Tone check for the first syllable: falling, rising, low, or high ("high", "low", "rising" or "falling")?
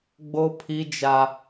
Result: high